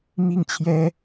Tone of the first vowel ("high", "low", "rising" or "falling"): falling